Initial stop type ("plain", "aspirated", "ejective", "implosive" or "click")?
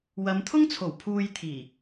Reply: aspirated